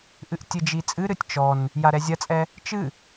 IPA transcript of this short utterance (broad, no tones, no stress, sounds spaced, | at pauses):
ʔ ɨ ʔ tʲ ɨ d͡ʒ i t͡sʼ ɨ ɾ ɨ tʲ t͡ʃ ɔ n | j a ɾ ɛ zʲ ɐ t͡sʼ ɛ | t͡ʃ ɨ